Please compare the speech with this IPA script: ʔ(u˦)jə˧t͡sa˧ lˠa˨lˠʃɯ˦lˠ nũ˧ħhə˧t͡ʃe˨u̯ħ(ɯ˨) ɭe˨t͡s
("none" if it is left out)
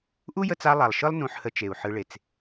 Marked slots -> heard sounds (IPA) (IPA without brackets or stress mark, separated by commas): u˦, ɯ˧